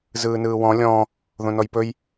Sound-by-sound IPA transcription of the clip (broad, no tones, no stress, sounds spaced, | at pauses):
z ɯː n ɯː w ɔ̃ lʲ ɔ̃ | ð õ n ɔ j p ɵ j